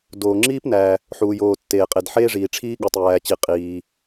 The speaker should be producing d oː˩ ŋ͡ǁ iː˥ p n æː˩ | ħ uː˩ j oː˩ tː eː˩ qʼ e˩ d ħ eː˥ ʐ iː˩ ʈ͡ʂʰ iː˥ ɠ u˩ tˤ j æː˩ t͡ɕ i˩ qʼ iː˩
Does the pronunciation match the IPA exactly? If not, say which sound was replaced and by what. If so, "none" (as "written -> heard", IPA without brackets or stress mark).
none